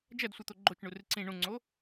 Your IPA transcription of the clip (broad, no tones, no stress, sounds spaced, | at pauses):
d͡ʒ ɐ d sʷ ɨ t̪ o ɡ͡ǃ o t͡ʃ ɳ u r ɨ ǀ ĩ ɳ ũ ŋ͡ǀ o